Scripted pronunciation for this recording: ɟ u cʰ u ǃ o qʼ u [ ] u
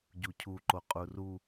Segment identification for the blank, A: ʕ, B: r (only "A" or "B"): B